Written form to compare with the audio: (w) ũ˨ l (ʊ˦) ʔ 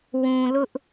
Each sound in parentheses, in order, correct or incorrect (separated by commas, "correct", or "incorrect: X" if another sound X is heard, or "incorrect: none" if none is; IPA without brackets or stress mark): correct, correct